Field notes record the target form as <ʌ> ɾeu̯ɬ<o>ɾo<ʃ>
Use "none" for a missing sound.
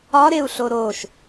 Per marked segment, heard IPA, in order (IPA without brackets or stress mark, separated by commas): ɒ, o, ʃ